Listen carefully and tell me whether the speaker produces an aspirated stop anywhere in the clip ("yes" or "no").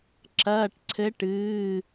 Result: yes